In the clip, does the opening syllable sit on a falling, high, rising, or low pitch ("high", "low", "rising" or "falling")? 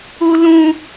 high